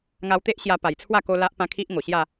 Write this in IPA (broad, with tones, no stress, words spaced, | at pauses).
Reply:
ŋa˧wt̪e˦ʔ ɕja˧pa˨˩jt͡sʰwa˥˧ ko˦la˦ʔpã˦kʰi˦ʔ ŋo˨˩ɕja˥˧